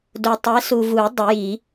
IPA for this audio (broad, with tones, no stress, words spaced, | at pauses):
do˨tˤɛ˨˥ su˨vu˨˩˦ dˤʊ˨˩˦ji˨˩˦